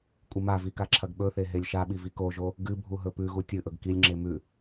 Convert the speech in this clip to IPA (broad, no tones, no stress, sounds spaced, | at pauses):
kʷʼ ɨ m a v i k a ǁʰ ɐ ɡ ɓ ɵ θ e ɦ e lʲ ʃ a ɓ i v i k o ʒ o | ɡ ɨ bʱ u ɦ ɵ p ʉ ɣ u tʲ ɨ ʔ ɵ ɡ k i lʲ ŋ͡ǁ e m ʉ